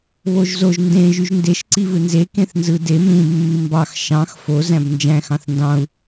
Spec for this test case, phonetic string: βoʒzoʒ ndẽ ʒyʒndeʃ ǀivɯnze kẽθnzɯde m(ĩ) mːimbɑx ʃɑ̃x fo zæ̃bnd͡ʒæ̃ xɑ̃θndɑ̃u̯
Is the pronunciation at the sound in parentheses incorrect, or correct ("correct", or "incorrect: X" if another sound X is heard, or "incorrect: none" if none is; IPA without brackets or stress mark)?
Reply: correct